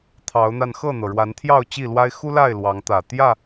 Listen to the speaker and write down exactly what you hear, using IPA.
t̪ʰ ɑ˨˦ ʊ̯ n̪ a˧ n x ɤ˥˨ n̪ ɤ˩ ɻ w a˨˦ n t̪ʰ j ɑ˥˨ ʊ̯ t͡ɕ i˥˨ l w a˦ ɪ̯ x u˦ l a˥˨ ɪ̯ l w ɑ˨˦ ŋ t̪ ä˨˩ t̪ j ä˥˨

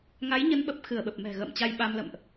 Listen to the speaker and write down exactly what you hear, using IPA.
ŋ a˨˦ j ɲ ə˨˦ n ɓ ə˨˩ p̚ x ɨ˧˩ ə̯ ɓ ə˨˩ p̚ m ɛ̤˨˩ ɣ ə̰ː˧˨ m t͡ɕ a˧ j ɓ a˧ m l ə̰˧˨ m ʔ

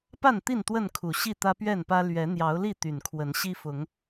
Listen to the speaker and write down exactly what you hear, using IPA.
p a˥˨ n t̪ i˥˨ n t̪ w ə˥˨ n kʰ u˨˩ ɕ i˥˨ t̪ ä˦ p ɥ ɛ˥˨ n p ä˦ l ɥ ɛ˨˦ n̪ j ɑ˨˦ ʊ̯ l i˥˨ t̪ y˨˩ n kʰ w ə˨˦ n ɕ i˦ f ʊ˨˦ ŋ

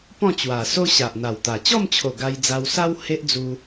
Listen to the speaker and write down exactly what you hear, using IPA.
p ɔ̃˥˧ t͡ɕ w a˨˩ s o˦ ɕ a˨ ʔ n̪ a˨˩ w t̪ a˨˩ t͡ɕ ɔ˥˧ m t͡ɕʰ o˨˩ ɡ a˧ j d͡z a˧ w s a˦ w h e˦ ʔ d͡z u˧

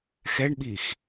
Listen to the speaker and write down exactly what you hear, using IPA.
x ɛ ɳ ɓ iː x

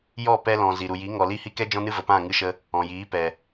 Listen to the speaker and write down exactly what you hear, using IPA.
j ɔ˦˨ p ɛ˧ l ɔ̃˨ z i˨ ɾ u˨ j i˨˦ ŋ ɔ˨ l i˦˨ h i˦ k ɛ˦ d͡ʒ ɔ̃˦ n ɨ˦ v ə˨ p ã˦˨ ŋ ɨ˧ ʃ ə˧ | ɔ̃˨ j iː˨˦ p ɛ˨

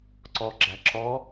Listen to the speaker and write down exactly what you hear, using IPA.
ǀ ɔ ɡ͡ǁ æ ǁ ɔ

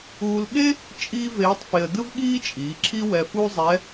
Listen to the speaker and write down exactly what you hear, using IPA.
uː˧ l ɠ e˥ | t͡ʃʼ iː˥ v eː˧˥ tˤ f e˧ ə̯ d ɯ˥ v ɠ iː˥ t͡ʃʼ iː˩˧ ǁʰ i˥ w ɛ˧ f u˥ zˤ ɛ˧˥

